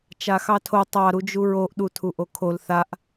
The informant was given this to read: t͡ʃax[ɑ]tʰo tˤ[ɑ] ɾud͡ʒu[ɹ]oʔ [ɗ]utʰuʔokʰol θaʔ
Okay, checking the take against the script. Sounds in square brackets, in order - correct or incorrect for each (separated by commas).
correct, correct, correct, correct